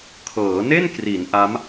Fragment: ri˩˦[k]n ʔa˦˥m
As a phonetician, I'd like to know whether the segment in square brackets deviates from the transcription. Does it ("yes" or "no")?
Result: yes